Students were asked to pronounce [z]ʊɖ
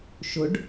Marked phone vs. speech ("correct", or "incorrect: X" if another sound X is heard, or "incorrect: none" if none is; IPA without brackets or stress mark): incorrect: ʃ